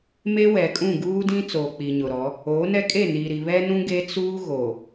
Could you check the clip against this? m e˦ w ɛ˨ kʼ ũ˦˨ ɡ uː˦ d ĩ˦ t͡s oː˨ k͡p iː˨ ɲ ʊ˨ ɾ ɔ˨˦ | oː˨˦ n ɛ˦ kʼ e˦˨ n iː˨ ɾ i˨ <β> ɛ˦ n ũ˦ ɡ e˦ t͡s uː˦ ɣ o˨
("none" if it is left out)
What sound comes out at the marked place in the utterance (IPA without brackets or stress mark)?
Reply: β